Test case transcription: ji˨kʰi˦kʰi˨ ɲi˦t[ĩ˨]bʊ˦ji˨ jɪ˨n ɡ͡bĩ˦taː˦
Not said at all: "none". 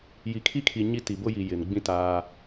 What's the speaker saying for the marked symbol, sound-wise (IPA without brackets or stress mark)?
i˨